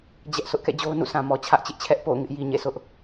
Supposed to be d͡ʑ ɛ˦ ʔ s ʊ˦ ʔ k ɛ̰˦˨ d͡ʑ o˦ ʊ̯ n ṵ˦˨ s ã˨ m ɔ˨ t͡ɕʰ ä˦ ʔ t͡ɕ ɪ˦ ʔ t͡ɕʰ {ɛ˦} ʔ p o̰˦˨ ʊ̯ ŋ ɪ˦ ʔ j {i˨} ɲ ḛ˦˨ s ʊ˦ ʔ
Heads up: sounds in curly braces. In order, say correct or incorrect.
correct, correct

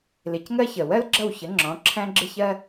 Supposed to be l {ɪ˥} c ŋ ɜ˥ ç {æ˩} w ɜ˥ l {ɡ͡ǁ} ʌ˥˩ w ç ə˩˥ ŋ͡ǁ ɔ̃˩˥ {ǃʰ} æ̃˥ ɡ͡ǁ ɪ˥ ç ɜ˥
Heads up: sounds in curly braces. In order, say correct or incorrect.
incorrect: ɪ˩˥, incorrect: ə˩, correct, incorrect: ǁʰ

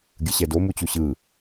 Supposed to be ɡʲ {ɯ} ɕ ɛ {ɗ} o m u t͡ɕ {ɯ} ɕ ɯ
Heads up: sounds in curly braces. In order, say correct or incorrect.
correct, incorrect: d, incorrect: u

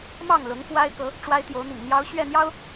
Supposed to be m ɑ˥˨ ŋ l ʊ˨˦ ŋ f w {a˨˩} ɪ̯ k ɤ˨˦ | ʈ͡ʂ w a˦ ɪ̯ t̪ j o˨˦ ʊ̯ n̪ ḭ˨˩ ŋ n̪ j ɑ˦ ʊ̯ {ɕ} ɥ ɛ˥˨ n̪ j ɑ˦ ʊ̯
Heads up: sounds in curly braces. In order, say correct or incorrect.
incorrect: a˦, correct

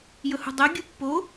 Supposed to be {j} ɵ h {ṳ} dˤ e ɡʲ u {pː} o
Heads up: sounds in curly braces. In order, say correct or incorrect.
correct, correct, correct

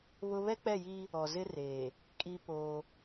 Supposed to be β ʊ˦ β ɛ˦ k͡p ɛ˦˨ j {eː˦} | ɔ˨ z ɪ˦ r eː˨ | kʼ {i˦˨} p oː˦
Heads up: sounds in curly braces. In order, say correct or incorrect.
incorrect: iː˦, incorrect: i˦

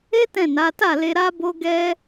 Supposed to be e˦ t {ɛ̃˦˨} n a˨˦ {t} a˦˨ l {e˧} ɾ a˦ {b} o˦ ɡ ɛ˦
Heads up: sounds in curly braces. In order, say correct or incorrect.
correct, correct, correct, correct

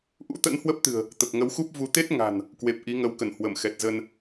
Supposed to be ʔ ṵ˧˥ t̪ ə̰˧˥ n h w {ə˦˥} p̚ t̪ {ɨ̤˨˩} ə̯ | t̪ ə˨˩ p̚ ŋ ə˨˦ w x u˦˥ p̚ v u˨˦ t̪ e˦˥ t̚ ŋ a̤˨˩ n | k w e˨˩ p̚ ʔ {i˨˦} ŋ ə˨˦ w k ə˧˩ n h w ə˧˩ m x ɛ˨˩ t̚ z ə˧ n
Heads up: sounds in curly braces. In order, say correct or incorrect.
correct, correct, correct

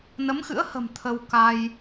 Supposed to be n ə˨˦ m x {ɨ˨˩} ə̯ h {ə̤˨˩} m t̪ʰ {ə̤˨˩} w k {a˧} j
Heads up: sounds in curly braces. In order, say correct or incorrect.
incorrect: ɨ̰˧˥, correct, incorrect: ə˧, correct

